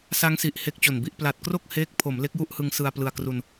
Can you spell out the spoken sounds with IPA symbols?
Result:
s a˦˥ ŋ s i˨˩ ʔ h e˦˥ k̚ t͡ɕ o˨˩ n b i˥˩ ʔ p l a˨˩ t̚ k r o˥˩ k̚ h eː˦˥ k̚ pʰ o˩˦ m l e˦˥ k̚ j u˥˩ ʔ h ɯ˧ ŋ s ɯ˧ a̯ p l ɯ˧ a̯ k r u˧ n

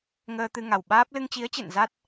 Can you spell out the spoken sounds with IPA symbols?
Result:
ŋ əː˧ t̪ ɨ˧ ŋ a˨˩ w ɓ aː˦˥ p̚ l ɨ˧ ŋ t͡ɕ i˨˦ ə̯ t͡ɕ ḛ˧˨ n z a˦˥ t̚

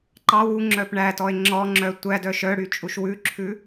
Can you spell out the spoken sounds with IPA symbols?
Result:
ǃ ɑ w u ŋ͡ǁ œ p ɳ æ t ɔ e̯ ŋ͡ǁ ɔ ŋ͡ǁ œ tʷ æ d œ ʃ œ ɽ y t͡ʃʼ u ʃ w ʉ ǁʰ ʉ

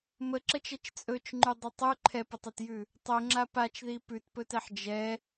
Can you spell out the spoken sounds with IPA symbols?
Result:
m ə ǁ ə t͡ʃ ɛ t͡ʃ t͡sʼ ɵ t͡ʃ ŋ͡ǃ ʉ dˤ ɵ tˤ ʉ ǃʰ ɛ p ə tˤ ɛ t j ʉ | tˤ ɵ ŋ͡ǁ a p a t͡ʃ ð i p ʉ t p ɵ t ɛ ħ d͡ʒ ɛ

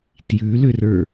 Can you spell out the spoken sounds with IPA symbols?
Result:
t j ʉ l ʏ r ə˞

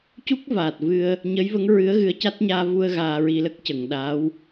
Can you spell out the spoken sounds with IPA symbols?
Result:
c u˦˥ k̚ v aː˨˩ t̚ v ɨ˧ ə̯ | ɲ ə˧˥ j v ə˧˥ ŋ ɹ ɨ˧˥ ə̯ ɣ ɨ˧˥ ə̯ c a˦˥ t̚ ɲ aː˧ v u˧ ə̯ ɣ aː˧ ɹ i˧ l ə˦˥ k̚ c ə˨˩˨ ŋ ɗ aː˧˥ w

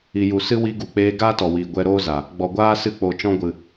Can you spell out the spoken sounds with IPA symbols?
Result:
i˨ j u˨ s ɨ˦ w i˧ ɡ u˨ k͡p eː˧ ɡ aː˦ t ɔ˨ w iː˨ ɡʷ ɛ˧ ɾ oː˦ z a˨ | ɡ͡b ɔ˨ ɡʷ aː˦ s ɨ˦ k͡p o˨ t͡ʃ ɔ̃˦ ɡʷ ɨ˨

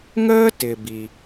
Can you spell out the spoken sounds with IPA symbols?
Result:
ŋ əː˥ t ɪ˩ b i˩

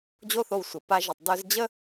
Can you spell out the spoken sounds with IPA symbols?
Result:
d͡ʑ o˦ θ o˧ w sʷ ə˨ p a˧ ʒ ɨ˨ tˤ d œ˧ z d͡ʑ ə˦

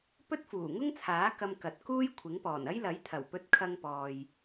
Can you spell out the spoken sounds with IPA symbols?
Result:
p ɵ˥ t̚ f uː˨˩ ŋ ʊ˥ ŋ t͡sʰ aː˨˥ k ɐ˧ m k ɐ˨ t̚ k uː˥ j kʷʰ ɪ˨˥ ŋ p ɔː˨˩ n ɐ˥ j l ɐ˨˥ j t̪ʰ ɐ˨˩ w p ɵ˧ t̚ kʰ ɐ˧ ŋ p ɔː˨ j

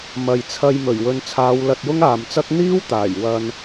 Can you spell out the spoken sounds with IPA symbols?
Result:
m ɐ˨ j t͡sʰ ɐ˧ j m ɵ˨˩ ɥ w ɵ˨ n t͡sʰ aː˨˧ w l ɐ˧ t̚ j ʊ˥ ŋ aː˨ m t͡s ɐ˥ k̚ n̪ iː˥ w t̪ aː˨˩ j w ɐ˨ n

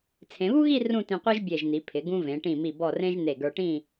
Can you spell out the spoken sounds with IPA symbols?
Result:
t͡sʰ ẽ˩˧ β u˥ ɣ i˥˧ r ũ˥˧ t ĩ˧ qʷ e˥ ʒ bʲ e˧˩ ʒ n̪ i˩˧ pʰ ɪ˩˧ ɡ ũ˧ v ẽ˩˧ ʈ ĩ˧˩ m i˧˩ b ɔ˧˩ r ẽ˧ ʒ n̪ e˧˩ ɡ ə˞˧ ʈ ĩ˥˧

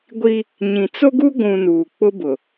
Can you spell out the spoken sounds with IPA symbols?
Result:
ɡʷ i˦ | ɲ ĩ˨ t͡s o˦ ɡ u˦ ɡʷ ũ˨ n uː˨ k͡p ʊ˦ b ʊ˨

